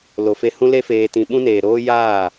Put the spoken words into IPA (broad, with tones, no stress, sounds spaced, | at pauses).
l o˨ f e˧ h ũ˧ l e˧ f eː˨ t ĩ˨ ɓ ũ˦ n eː˨ ɾ oː˦ j aː˦˨